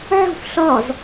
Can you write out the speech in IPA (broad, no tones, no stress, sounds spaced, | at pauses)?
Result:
ʕ o̤ f ɬ ɒ z